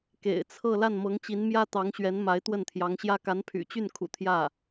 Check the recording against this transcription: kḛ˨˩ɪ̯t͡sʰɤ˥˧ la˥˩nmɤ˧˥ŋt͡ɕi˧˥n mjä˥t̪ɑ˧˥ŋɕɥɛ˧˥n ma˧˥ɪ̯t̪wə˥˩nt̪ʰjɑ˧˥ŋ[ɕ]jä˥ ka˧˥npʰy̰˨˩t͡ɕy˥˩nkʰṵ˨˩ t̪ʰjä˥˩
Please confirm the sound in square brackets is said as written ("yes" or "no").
yes